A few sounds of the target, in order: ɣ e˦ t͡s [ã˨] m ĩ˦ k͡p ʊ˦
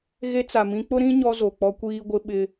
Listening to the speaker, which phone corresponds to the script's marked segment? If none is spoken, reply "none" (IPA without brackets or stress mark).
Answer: a˨